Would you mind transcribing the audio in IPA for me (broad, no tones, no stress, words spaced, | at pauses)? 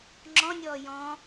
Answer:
ŋ͡ǁɔ̃nʲɔː jɔ̃